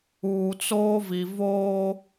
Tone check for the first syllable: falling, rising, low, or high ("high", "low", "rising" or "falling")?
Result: low